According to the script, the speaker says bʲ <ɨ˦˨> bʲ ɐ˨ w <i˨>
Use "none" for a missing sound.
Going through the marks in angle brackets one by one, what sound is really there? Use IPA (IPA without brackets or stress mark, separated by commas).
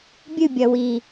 ɨ˦˨, i˨